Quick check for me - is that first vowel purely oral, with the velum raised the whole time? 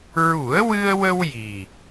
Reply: yes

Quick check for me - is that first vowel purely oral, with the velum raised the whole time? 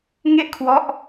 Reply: yes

